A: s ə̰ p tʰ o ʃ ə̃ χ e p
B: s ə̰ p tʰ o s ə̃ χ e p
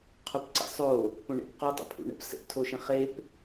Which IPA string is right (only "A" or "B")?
A